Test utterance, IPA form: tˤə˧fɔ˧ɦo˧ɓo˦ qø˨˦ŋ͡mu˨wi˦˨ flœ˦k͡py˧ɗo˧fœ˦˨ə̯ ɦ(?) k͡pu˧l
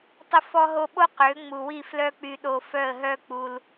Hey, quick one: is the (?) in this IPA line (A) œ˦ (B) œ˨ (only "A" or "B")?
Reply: A